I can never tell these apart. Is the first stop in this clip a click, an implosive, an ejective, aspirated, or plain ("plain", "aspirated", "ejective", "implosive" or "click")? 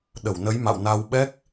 implosive